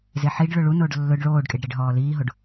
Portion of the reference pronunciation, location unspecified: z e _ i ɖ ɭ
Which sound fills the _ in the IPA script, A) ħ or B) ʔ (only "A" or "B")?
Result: A